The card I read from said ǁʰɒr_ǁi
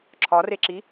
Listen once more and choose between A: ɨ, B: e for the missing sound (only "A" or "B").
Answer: B